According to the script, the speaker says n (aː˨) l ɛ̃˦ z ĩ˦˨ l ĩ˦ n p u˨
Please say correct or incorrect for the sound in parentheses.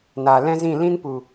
correct